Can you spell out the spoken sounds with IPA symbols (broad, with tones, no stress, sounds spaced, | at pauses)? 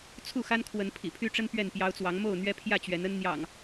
t͡sʰ u˥˨ x a˦ n kʰ w ə˨˦ n pʰ ḭ˨˩ pʰ y˦ ʈ͡ʂ ə˦ n p ɥ ɛ˥˨ n p j ɑ˦ ʊ̯ t͡s w ɑ˨˦ ŋ m o˥˨ ʊ̯ n̪ ɥ ɛ˦ pʰ j ä˥˨ t͡ɕ ɥ ɛ˨˦ n ə˦ n n̪ j ɑ̰˨˩ ŋ